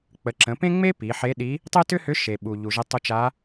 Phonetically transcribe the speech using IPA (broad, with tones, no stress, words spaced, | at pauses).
k͡pə˩˧ǁə̃˩˧ pẽ˥ŋ͡me˥ pi˩˧ħe˧˥ɗi˧˥ | tˤe˥tʏ˥hʏ˧˥ ʃe˩ɓu˩ ʎu˩ʒə˧tˤu˧t͡ʃa˧˥